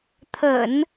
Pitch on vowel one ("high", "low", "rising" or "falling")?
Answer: low